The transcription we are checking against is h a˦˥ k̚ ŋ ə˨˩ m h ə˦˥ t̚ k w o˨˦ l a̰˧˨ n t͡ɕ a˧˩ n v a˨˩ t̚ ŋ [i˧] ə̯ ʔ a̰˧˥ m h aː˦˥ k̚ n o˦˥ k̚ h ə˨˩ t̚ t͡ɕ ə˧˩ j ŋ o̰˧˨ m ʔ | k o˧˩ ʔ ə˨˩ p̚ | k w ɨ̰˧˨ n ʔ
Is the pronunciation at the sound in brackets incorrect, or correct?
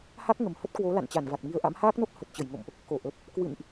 incorrect